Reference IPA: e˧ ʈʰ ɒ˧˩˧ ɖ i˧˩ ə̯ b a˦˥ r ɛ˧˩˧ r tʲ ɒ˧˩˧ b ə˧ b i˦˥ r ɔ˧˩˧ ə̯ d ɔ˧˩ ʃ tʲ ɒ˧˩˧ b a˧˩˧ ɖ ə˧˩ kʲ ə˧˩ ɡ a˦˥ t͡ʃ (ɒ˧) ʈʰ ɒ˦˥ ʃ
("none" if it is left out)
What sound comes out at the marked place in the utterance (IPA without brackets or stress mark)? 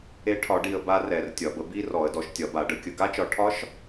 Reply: ɒ˧